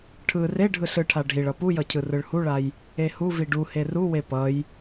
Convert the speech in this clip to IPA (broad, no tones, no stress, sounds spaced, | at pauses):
ʈʰ ɯ r e ɖʱ ɯ ɬ ɯ ʈʰ a ɖʱ i ɭ ʌ p u j ʌ cʰ ɯ r ɯ ɭ h u ɭ a j | e h u v i ɖ u h e r u w e p ʌ j